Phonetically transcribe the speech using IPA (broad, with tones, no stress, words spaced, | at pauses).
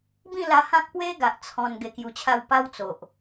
bĩ˥˧la˧hã˦k̚ pwe˦ ɡa˨ʔ t͡sʰɔ̃˧n ɡe˧kju˧t͡ɕʰa˥˧w pa˦wt͡so˨ʔ